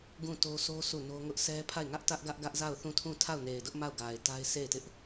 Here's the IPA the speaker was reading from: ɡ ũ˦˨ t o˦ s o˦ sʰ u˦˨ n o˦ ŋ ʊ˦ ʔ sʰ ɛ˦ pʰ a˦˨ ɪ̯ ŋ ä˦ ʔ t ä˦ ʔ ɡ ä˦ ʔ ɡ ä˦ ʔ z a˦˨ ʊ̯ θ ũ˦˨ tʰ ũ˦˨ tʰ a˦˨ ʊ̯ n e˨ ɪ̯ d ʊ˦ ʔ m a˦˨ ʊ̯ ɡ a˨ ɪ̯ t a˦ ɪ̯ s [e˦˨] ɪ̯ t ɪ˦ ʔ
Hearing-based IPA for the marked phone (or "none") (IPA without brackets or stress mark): e˦˨